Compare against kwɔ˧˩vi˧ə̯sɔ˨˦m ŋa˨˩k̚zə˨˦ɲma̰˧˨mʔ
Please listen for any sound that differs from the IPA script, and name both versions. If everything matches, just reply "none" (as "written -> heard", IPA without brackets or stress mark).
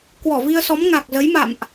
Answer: ɲ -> j